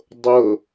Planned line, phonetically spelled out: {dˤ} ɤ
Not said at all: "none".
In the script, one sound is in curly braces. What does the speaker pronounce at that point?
dˤ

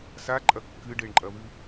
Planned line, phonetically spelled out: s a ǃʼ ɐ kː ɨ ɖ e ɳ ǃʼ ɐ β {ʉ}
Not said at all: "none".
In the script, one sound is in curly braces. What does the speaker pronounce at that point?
ʉ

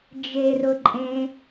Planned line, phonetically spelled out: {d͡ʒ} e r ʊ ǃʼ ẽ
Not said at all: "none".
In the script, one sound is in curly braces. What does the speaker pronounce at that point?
d͡ʒ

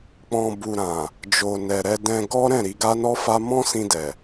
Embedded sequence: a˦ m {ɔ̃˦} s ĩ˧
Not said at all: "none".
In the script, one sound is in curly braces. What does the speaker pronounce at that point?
ɔ̃˦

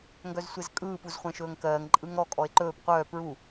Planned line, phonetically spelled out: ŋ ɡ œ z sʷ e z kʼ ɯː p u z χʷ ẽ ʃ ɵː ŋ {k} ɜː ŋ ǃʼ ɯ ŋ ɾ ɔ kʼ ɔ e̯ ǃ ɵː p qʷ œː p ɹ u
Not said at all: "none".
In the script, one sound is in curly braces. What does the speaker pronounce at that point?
k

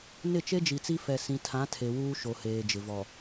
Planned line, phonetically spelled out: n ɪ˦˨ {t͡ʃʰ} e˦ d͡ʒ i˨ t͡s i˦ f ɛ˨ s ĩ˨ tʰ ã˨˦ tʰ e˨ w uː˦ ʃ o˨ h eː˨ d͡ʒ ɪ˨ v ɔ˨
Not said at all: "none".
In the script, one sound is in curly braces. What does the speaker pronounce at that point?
t͡ʃ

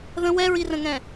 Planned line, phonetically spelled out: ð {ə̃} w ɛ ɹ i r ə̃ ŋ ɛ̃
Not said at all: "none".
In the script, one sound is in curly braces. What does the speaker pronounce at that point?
ə̃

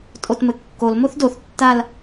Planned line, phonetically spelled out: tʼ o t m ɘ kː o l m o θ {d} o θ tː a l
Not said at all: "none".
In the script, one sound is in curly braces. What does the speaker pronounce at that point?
d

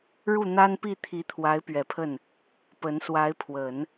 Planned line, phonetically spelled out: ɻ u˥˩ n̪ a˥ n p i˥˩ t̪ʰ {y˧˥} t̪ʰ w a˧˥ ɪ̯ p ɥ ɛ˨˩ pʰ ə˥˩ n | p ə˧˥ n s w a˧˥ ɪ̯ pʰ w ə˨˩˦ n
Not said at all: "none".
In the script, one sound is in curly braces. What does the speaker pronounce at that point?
i˧˥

